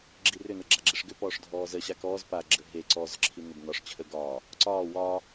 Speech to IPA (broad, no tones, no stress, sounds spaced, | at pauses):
ɡ͡ǁ i r ʏ n ə ɡ͡ǁ a ɡ͡ǁ i ʂ ɡ ʏ p ɔː ʂ dʱ ɔː z ə ɕ a k ɔː z p a ɡ͡ǁ ə ɦ e ǀ ɔː z ǁʰ i n ʏ b n ɒ ʂ t͡ɕʰ ə ɡ ɒː | ǀ ɒː w ɒː